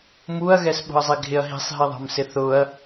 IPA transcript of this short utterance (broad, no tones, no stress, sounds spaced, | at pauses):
m u ɐ̯ ɣ ɛ s ɓ ṳ ɐ̯ zˤ i ɡʱ ɪ ɐ̯ ɦ i̤ sˤ ɦ i ðˤ ɑ̤ m s ɪ θ ʊ ɐ̯